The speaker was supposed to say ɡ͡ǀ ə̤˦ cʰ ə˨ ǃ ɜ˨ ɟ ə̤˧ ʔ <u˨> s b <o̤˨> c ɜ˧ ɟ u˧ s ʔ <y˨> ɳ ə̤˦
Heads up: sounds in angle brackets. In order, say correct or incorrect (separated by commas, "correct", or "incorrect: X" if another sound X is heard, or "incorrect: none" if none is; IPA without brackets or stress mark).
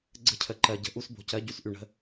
incorrect: u˧, correct, correct